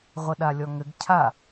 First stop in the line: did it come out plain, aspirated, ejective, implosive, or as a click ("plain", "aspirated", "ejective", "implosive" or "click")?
implosive